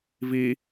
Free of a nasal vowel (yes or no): yes